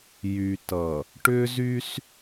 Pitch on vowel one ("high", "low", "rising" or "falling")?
low